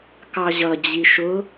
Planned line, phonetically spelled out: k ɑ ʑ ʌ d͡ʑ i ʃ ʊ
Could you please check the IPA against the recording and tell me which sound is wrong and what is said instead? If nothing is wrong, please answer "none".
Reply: none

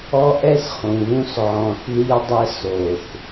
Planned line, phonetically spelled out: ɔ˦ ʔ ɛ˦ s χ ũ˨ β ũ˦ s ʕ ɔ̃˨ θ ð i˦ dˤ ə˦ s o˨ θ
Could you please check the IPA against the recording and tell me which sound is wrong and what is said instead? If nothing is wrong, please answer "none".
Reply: none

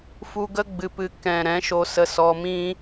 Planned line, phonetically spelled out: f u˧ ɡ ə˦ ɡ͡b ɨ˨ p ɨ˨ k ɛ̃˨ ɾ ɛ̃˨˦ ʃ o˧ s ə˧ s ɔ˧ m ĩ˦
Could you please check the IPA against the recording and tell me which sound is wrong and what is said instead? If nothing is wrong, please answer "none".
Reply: none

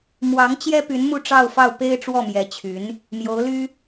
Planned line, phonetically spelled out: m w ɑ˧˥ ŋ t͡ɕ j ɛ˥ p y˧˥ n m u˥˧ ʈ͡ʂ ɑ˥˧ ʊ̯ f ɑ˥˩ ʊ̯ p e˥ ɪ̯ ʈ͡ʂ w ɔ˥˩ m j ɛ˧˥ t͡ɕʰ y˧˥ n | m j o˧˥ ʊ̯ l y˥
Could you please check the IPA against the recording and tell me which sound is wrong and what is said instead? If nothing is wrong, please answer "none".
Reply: none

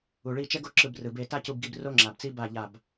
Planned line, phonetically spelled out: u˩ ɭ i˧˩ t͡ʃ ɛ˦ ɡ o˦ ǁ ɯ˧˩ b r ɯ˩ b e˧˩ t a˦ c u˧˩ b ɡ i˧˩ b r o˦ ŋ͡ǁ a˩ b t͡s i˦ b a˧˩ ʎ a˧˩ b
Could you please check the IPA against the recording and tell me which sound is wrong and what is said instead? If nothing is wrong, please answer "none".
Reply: none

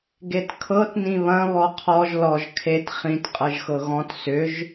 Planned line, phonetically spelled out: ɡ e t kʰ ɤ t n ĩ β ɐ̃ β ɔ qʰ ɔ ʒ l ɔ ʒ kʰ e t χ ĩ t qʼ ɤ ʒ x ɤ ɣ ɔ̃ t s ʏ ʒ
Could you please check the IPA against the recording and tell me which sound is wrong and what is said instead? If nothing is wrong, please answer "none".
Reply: none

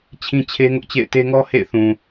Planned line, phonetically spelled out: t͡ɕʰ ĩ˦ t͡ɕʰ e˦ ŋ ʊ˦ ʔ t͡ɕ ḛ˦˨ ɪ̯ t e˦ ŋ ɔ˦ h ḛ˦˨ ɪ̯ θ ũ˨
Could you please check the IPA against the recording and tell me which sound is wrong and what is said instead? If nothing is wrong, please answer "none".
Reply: none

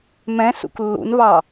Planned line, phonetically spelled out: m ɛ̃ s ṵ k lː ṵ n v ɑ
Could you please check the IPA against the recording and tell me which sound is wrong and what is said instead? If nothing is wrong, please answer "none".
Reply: none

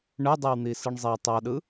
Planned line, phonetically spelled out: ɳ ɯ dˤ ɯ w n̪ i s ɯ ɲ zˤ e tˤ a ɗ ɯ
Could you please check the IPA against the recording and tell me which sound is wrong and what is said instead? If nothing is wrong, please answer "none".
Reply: ɲ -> ɳ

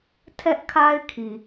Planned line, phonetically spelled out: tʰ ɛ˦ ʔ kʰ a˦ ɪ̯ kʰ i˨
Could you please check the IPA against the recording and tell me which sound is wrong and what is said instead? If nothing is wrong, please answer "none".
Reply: none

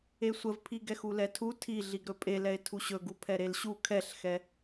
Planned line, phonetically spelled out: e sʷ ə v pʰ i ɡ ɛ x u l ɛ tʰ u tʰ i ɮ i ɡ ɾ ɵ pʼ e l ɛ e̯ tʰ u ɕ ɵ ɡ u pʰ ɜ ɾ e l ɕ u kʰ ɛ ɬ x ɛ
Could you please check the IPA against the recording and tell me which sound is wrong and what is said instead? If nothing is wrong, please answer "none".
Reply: ɜ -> ɛ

